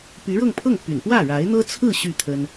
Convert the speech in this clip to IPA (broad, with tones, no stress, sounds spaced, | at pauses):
p y˧˥ ɻ ɤ˥˧ ŋ pʰ ɤ˥˩ ŋ p y̰˨˩ n p w ä˥˩ ɻ a˧˥ ɪ̯ n̪ ɤ˥ t͡sʰ ɹ̩˥˧ ɕ y˥˩ t̪ʰ ə˥ n